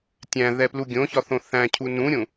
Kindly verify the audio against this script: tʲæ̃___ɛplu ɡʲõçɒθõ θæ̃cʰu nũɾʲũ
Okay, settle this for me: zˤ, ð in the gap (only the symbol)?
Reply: ð